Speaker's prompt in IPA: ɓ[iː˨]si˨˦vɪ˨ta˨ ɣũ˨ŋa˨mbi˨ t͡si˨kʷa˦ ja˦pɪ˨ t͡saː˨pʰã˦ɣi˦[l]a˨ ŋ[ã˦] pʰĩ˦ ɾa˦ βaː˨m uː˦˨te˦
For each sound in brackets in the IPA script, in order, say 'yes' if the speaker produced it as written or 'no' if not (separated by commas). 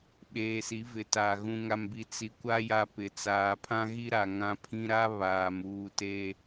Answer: no, no, yes